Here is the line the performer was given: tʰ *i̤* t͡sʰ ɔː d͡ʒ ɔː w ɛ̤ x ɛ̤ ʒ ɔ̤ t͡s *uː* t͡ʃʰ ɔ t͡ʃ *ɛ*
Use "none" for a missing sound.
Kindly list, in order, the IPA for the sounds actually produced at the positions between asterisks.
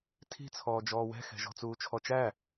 i̤, uː, æ

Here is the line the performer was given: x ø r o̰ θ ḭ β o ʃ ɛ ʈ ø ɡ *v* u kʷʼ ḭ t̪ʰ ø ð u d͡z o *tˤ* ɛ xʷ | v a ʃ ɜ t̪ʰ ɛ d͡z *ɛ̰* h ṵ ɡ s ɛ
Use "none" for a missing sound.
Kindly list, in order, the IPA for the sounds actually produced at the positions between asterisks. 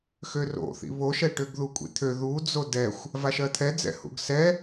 ð, d, ɛ̰

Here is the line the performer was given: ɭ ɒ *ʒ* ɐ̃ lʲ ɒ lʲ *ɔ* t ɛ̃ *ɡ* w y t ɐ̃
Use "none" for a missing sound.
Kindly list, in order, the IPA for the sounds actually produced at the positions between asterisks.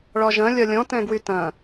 ʒ, ɔ̃, ɡ

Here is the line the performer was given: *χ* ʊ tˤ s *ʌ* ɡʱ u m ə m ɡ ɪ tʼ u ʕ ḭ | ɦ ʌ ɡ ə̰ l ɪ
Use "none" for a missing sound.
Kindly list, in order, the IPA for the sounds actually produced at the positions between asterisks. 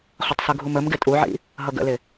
χ, ə

